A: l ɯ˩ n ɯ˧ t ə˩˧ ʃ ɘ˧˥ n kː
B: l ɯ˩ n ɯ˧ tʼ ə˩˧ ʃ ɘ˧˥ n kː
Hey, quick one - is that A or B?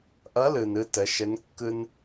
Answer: A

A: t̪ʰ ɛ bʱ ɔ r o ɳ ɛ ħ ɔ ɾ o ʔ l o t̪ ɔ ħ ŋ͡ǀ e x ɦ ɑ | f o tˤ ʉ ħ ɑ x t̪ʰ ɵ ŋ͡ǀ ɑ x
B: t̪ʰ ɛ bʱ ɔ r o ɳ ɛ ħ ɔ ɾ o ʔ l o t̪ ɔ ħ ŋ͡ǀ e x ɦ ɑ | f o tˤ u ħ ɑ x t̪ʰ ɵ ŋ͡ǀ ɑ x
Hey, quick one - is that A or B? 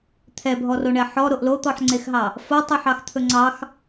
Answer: A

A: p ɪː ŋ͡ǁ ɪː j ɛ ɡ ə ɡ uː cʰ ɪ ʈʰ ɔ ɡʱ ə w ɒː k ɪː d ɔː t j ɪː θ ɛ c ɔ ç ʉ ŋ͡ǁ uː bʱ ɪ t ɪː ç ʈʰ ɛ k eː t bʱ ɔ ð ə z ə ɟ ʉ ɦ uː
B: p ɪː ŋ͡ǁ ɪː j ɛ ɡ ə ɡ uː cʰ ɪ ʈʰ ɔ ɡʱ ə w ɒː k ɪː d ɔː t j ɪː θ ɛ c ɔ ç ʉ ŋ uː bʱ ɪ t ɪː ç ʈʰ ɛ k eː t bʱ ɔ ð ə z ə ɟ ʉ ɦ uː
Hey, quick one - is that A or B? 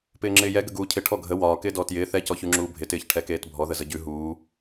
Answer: A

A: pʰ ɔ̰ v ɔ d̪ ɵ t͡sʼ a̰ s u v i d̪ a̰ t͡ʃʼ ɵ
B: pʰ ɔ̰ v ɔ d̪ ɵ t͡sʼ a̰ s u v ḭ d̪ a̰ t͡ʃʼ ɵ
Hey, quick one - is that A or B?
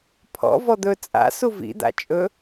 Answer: B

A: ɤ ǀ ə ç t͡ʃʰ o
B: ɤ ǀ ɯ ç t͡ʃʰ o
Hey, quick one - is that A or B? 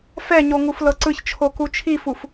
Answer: B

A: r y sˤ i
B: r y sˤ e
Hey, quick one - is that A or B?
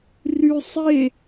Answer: B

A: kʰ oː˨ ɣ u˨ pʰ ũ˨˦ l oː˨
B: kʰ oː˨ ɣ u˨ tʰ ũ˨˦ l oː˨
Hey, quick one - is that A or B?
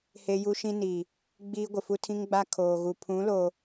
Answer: A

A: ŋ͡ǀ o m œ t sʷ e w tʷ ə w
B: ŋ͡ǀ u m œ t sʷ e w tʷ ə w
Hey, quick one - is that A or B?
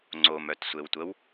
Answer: A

